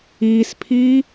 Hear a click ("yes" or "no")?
no